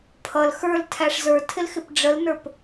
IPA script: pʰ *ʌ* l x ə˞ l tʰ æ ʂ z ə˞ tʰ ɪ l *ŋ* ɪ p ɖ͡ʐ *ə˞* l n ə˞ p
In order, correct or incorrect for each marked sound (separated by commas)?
correct, incorrect, incorrect